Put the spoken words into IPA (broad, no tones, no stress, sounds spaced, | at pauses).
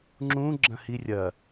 ŋ͡ǁ ũ ɡ͡ǁ ɐ̃ h i rʲ ɐ